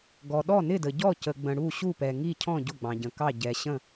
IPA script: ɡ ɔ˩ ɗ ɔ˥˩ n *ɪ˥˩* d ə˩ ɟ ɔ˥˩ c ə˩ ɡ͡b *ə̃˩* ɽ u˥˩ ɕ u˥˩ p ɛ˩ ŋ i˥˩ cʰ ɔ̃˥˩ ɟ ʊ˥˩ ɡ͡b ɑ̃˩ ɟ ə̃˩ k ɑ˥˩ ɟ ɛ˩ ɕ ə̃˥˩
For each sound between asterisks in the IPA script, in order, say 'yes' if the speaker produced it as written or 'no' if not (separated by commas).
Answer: yes, yes